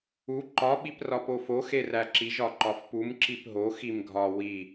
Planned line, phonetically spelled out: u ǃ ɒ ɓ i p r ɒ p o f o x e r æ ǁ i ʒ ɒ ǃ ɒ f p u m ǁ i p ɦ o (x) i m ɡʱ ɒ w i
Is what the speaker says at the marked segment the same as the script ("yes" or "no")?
yes